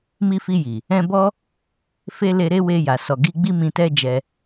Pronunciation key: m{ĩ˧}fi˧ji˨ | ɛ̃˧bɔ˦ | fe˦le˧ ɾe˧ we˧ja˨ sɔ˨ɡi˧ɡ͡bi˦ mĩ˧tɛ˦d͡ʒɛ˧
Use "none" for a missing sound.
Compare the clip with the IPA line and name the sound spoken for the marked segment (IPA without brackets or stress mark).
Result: i˧